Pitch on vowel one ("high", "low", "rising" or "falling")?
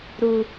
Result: low